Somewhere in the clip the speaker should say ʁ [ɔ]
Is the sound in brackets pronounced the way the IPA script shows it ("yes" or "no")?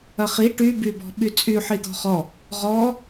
yes